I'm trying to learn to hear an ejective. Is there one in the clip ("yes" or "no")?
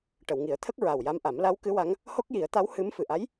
no